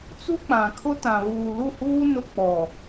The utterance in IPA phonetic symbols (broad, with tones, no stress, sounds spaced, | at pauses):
t͡s u˦ k͡p ã˨ kʰ ʊ˦ t ã˨ β uː˨ l u˦˨ h uː˦ n ʊ˦ k͡p ɔ˨